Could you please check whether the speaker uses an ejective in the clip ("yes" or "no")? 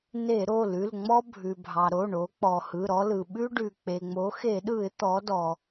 no